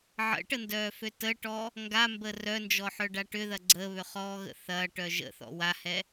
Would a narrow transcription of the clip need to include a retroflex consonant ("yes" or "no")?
yes